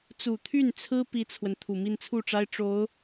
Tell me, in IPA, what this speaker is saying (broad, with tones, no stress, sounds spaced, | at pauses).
t͡s u˨˩ t̪ʰ y˥˩ n t͡sʰ ɹ̩˥ p i˥ t͡sʰ w ə˨ n t̪ʰ u˨˩ m i˥˧ n t͡sʰ u˥˩ ʈ͡ʂ a˥ ɪ̯ ʈ͡ʂ o˧˥ ʊ̯